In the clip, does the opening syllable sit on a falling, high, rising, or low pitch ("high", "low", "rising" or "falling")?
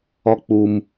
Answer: high